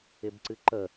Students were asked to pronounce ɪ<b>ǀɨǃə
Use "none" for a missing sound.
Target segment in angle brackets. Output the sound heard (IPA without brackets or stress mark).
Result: b